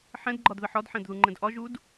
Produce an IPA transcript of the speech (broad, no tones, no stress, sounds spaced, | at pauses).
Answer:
ħ ɛ̃ d ɡ͡ǃ ɒ d ð ə ħ ɒ d ħ ɛ̃ d ð u ŋ͡ǃ ɛ̃ d ʔ ɒ ʒ u d